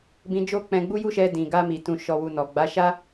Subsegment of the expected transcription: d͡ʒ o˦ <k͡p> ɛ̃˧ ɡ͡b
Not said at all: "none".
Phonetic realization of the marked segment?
k͡p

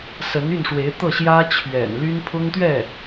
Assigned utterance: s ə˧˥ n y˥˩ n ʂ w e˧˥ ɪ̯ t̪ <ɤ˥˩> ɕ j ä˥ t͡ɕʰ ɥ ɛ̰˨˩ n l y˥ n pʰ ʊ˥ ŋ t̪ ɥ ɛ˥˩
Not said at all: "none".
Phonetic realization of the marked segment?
ɤ˥˩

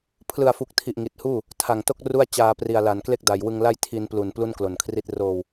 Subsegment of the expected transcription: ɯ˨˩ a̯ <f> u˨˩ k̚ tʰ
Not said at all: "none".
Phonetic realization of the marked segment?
f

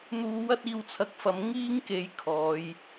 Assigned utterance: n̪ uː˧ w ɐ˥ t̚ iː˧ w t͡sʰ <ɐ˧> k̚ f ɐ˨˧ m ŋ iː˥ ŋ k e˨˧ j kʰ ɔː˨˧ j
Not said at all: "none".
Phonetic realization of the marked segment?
ɐ˧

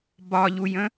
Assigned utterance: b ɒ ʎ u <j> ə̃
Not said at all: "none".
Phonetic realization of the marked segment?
j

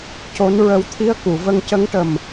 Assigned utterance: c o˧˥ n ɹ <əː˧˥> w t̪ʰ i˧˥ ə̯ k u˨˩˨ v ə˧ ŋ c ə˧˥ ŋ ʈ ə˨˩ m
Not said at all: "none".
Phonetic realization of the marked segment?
ə˧˥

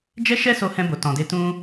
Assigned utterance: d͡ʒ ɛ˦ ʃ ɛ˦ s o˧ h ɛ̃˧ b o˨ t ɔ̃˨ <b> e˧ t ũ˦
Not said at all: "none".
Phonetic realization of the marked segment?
d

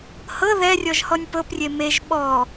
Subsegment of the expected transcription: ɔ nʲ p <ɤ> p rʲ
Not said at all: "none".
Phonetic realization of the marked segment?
ɤ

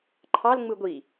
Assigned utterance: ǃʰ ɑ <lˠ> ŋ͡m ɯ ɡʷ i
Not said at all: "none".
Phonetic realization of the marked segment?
l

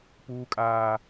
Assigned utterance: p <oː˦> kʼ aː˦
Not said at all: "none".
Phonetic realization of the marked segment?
uː˦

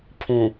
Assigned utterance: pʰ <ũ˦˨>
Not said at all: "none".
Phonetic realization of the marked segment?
ũ˨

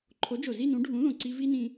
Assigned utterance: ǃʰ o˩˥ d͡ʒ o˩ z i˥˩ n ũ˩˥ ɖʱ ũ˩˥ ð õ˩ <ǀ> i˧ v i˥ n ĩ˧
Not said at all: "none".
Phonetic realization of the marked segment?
ǀ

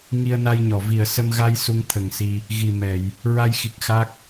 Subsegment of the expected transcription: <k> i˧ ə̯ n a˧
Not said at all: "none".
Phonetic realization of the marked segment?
ŋ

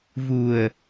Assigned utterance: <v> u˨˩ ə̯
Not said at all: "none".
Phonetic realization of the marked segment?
v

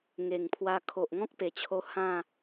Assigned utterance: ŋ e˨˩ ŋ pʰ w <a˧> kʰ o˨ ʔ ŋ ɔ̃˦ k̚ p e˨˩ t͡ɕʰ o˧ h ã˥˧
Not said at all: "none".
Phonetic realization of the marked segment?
a˧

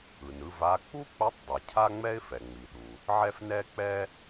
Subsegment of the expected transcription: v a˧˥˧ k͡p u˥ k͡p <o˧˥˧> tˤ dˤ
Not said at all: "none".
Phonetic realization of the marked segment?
o˧˥˧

